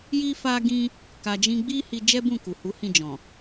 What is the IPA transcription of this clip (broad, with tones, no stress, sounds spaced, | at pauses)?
j i˦ f a˦ ɡ ĩ˦ | k a˧ d͡ʒ ĩ˦ ɡ͡b i˦ h i˧ d͡ʒ ɛ˦ b ũ˦˨ k u˨ h u˨˦ h ĩ˦˨ d͡ʒ ɔ̃˨